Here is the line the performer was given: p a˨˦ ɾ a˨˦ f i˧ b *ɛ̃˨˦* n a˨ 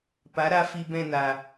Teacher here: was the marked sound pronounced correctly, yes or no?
no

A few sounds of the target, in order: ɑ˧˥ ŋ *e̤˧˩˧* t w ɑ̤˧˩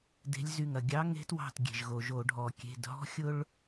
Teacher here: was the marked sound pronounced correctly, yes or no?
no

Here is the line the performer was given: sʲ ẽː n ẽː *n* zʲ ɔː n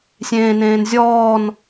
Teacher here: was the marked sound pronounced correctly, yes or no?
yes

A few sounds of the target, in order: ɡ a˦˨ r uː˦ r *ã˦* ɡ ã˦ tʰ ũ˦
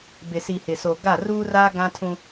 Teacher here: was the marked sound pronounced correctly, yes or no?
no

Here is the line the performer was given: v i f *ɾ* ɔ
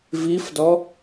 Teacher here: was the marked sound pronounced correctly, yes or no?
no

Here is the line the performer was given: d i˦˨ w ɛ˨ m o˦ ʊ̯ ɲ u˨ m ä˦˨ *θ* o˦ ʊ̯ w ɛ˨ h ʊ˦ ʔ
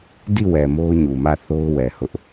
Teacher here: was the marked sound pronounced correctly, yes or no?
yes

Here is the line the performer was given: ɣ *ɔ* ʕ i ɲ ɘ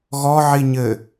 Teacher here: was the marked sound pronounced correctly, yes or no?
yes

